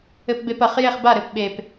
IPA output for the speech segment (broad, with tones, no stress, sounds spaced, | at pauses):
ɘ˧ p b e˧ p ɐ˨˩ χ j e˥˩ χ b a˥˩ ɾ ɘ˨˥ p ɓ e˨˩ p